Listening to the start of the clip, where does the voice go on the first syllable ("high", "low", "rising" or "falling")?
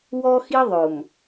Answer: high